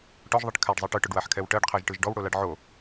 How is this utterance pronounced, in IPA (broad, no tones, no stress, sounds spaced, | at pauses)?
ʈ ɔ ʒ ðˤ i ʈ kʰ a ɖ zˤ i ʈ ɯ ʈ ʊ ɖ w a ħ kʰ ɛ w ʈ ɜ ɖ qʰ ɜ ʒ ʈ ɯ ʒ ɖ ɔ w ɽ o l a ɖ ʕ o